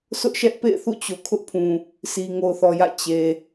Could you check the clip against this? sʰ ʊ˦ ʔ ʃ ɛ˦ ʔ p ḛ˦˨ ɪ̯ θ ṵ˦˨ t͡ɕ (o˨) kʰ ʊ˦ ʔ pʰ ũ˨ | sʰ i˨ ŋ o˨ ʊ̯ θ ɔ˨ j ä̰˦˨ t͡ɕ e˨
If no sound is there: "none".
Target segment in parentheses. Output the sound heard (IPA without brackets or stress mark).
o˨